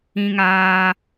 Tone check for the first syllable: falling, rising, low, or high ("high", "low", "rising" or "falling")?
high